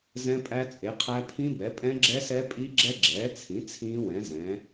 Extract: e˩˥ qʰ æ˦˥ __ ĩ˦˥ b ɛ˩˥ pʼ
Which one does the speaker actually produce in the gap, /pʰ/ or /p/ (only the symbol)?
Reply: pʰ